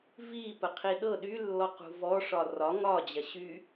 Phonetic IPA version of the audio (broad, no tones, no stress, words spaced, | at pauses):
vipəqʰi ɗɤ ɗylːɔqṳ vɔʂɒ rɒ ŋɒd͡ʑɐɕy